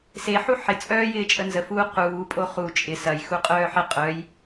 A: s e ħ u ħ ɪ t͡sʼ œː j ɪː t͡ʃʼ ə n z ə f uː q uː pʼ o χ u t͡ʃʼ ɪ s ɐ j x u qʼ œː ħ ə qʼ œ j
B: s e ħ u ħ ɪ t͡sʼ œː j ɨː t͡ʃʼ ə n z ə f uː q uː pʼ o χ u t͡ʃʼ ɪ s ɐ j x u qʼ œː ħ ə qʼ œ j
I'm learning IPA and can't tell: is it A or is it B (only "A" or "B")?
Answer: A